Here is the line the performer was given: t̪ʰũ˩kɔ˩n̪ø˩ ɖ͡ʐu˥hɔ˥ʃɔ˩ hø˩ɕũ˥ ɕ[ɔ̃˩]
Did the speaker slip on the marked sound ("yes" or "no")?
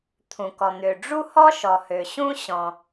no